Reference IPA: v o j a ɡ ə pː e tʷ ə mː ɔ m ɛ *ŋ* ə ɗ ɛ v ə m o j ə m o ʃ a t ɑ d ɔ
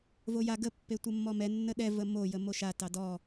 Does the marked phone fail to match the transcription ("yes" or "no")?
yes